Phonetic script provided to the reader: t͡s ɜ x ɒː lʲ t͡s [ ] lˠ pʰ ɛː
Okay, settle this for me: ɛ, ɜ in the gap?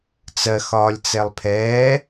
ɛ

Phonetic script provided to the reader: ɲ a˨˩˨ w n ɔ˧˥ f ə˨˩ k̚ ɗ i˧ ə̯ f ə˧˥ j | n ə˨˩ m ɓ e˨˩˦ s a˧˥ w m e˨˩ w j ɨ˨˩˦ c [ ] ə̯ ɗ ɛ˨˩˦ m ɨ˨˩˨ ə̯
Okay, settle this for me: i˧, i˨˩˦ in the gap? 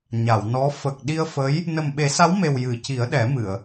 i˨˩˦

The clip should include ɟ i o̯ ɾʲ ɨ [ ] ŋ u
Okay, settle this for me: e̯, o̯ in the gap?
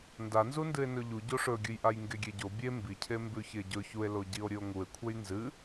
o̯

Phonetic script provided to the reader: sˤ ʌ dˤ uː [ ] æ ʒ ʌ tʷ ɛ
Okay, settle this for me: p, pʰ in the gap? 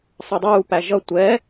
p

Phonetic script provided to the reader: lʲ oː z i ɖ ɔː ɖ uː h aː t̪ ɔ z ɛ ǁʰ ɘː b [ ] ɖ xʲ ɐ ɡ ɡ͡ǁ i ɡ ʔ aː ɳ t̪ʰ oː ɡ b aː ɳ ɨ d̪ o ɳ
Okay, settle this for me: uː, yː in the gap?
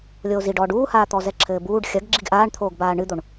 uː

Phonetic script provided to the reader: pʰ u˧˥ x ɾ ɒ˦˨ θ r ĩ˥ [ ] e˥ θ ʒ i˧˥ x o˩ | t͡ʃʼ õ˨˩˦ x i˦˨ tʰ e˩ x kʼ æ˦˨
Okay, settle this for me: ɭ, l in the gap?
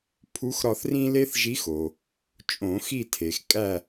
l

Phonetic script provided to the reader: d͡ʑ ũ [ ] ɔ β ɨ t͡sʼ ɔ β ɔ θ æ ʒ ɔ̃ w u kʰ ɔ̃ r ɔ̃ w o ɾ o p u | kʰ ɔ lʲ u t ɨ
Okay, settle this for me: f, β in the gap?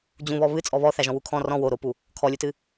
β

